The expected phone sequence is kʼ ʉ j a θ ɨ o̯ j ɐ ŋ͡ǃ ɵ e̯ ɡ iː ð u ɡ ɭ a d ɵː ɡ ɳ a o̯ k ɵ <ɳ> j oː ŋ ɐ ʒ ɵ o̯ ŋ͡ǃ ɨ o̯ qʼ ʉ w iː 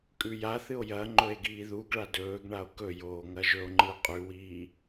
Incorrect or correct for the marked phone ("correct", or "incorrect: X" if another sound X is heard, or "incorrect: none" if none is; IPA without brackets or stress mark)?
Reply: incorrect: none